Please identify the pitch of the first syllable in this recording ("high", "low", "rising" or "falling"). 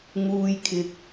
low